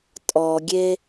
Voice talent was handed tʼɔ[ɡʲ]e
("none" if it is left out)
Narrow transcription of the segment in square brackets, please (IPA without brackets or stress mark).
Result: ɡʲ